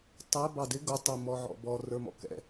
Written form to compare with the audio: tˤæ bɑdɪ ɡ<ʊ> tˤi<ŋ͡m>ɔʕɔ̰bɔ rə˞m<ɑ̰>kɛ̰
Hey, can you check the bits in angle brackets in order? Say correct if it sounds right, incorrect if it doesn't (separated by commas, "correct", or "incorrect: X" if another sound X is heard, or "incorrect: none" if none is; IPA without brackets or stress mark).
correct, incorrect: m, incorrect: ɔ̰